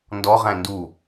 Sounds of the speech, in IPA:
n d ɔ ʁ æ̃ n d u

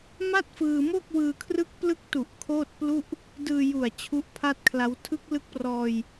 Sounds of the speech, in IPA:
m a˥˩ t̚ f ɯː˧ m oː˥˩ k̚ w ɯː˧ kʰ r ɯ˦˥ k̚ p l ɯ˦˥ k̚ t u˨˩ ʔ kʰ oː˥˩ t̚ p l u˥˩ ʔ | d ɯː˧ j u˨˩ a̯ t͡ɕʰ u˦˥ ʔ pʰ a˥˩ t̚ kʰ l a˦˥ w tʰ ɯ˦˥ k̚ l ɯ˦˥ k̚ p r ɔː˧ j

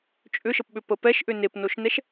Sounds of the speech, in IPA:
t͡ʃʼ ʏ ʃ ə p ɓ ʏ p ə p ɛ ʃ ʔ ʏ n e p n o ʃ n ɛ ʃ

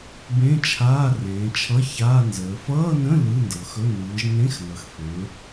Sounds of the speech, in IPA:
b ẽ˧˥˧ t͡ʃʰ aː˧˥˧ r ẽː˨˦ t͡ʃʰ ʌ˧˥˧ ç aː˧˥˧ n z əː˨˦ f ʌː˧˥˧ n ə̃˧˥˧ l ɯ˧˥˧ n d ɤ˨˦ x ɵ˧˥˧ n ɯː˨˦ ʒ n ẽ˧˥˧ x n ʌ˨˦ x f ẽ˨˦ ɹ

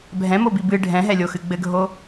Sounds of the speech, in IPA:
bʱ ɛ̃ m o b i b ɨ ɖʱ ɛ̃ ɦ ɛ lʲ o x ɨ ɡ͡b ɘ ɡʱ o

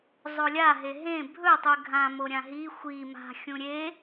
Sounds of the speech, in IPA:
zˤ o lʲ a ɦ e ɦ ẽ bʱ ɵ tˤ ʉ ɡʱ ã m o ɾʲ ã ɦ i xʷ i m a̤ xʲ ũ ɾʲ e

